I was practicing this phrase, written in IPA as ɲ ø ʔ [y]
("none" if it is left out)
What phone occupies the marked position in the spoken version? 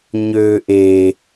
e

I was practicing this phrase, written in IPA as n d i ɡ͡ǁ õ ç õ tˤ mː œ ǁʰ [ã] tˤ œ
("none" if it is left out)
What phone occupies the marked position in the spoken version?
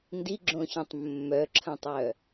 ɐ̃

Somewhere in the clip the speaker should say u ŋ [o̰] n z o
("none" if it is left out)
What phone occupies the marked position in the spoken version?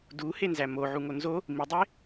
o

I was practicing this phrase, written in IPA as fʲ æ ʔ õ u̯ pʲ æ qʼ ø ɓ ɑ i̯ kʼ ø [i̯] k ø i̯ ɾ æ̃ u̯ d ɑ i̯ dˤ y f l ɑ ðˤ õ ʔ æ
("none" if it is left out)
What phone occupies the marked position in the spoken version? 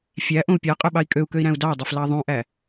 u̯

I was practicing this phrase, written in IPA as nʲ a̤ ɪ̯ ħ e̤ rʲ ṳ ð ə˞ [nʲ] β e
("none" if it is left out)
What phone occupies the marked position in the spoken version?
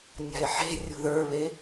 none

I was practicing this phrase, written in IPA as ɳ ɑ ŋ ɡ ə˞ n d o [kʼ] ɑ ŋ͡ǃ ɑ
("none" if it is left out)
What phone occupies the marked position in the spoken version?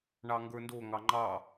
ŋ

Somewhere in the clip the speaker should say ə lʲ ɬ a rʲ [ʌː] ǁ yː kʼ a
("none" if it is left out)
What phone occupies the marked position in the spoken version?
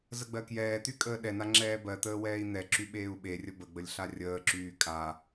əː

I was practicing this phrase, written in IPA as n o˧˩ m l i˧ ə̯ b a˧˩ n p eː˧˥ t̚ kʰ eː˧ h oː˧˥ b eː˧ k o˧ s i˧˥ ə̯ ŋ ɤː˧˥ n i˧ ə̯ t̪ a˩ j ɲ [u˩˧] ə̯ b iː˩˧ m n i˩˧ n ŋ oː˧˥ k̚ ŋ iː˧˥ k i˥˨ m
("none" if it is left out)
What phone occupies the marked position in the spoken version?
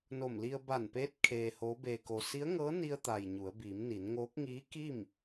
u˩˧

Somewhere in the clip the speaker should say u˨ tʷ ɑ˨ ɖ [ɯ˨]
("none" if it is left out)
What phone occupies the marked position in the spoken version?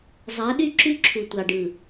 ɯ˨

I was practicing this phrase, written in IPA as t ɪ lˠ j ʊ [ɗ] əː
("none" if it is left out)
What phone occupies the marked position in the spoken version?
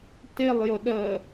ɗ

